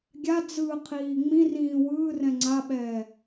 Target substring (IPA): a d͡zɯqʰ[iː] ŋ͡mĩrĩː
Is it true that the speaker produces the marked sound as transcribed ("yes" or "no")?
yes